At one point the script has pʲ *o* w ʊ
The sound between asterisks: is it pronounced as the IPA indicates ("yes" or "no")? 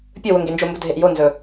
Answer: no